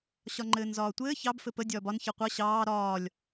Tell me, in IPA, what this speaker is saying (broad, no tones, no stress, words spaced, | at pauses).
ɕɒŋ͡ǃɘːnzɒːtʷɘː çɑb fɘpə dʲɒːbɒn çɤqʷɤ ɕɑː ɾɒːlʲ